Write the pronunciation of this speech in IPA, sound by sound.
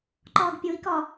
ǃ ɒː ɡ pʲ o i̯ k ɒ

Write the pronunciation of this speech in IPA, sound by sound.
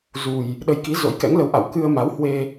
z u˨˩ j | ɗ ə˨˦ j k i˨˦ z o̰˧˥ j k ɛ̰˧˥ ŋ l ə˨˦ w ʔ a̰˧˨ w k ɨ˧ ə̯ m a˨˦ w h w e˧

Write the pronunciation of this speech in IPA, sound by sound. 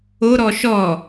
o ɾ ɔ ʃ ɔ

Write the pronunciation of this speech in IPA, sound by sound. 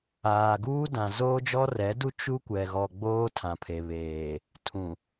aː˨ ɡ uː˦ d ã˨ z oː˦ d͡ʒ ɔ˦ r ɛ˨˦ d u˦ t͡ʃ u˦ kʷ ɛ˨ ɣ ɔ˨ ɡ͡b oː˦ tʰ ã˨ pʰ e˨ β eː˨ | tʰ ũ˨

